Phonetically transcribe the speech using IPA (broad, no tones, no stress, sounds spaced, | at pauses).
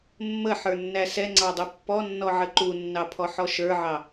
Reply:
mː ə ħ ə˞ nː æ s ɛ ŋ͡ǀ ɑ dˤ ʊ pː ɔ nː ɔ ʕ ə ǃ u nː ɑ pʰ ɔ ħ ɔ ʃ ə˞ ʕ ɑ